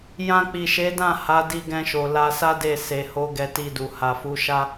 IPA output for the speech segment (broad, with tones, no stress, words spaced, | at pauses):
jã˧k͡pi˨ʃe˨˦dã˦˨ ha˨˦di˧ɡɛ̃˧ʃo˨ la˧sa˦de˦˨ se˨ho˨˦ ɡɛ˧ti˧du˨ ha˨fu˨˦ʃa˦